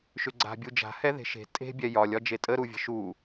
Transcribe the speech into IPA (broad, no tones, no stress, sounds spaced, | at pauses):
ʃ ʏ ɡ͡ǀ a̤ bʲ u d͡ʒ a̤ h ɛ ð e̤ ʃ e̤ tʼ e̤ bʲ ɛ j ɒ lʲ ɒ d͡ʒ e tʼ ə ɾ u vʲ ə̤ ʃ u